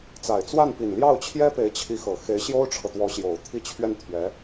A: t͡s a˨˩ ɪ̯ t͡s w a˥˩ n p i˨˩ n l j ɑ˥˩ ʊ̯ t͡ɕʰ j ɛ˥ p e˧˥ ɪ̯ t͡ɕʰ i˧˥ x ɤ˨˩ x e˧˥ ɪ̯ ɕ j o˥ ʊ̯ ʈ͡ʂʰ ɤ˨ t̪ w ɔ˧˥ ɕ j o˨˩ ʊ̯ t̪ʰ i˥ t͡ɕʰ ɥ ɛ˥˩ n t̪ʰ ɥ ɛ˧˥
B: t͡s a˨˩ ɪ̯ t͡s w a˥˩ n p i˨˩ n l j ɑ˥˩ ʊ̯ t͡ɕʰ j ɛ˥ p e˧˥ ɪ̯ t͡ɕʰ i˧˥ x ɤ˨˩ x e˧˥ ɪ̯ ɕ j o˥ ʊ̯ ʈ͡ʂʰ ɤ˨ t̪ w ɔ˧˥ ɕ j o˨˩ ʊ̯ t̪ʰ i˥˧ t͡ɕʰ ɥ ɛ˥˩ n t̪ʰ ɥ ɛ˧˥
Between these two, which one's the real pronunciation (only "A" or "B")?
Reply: B